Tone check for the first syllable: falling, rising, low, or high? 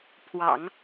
low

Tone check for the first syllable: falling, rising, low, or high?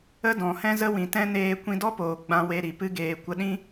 high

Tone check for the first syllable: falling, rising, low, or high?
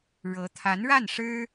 rising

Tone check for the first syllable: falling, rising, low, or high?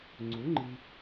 rising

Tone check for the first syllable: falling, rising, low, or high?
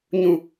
low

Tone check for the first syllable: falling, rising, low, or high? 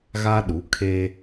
high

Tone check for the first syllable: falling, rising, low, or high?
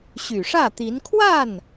low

